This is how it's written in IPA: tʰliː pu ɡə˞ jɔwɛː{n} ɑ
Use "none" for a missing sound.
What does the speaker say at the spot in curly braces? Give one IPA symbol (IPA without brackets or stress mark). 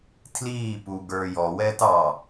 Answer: t